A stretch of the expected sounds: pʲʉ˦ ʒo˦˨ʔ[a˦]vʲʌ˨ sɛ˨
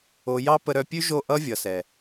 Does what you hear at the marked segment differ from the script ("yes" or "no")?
yes